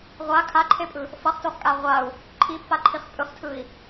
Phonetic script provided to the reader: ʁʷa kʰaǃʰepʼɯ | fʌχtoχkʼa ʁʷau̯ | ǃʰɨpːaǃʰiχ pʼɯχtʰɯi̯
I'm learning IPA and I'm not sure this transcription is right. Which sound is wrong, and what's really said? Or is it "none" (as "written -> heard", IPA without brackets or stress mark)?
ɨ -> i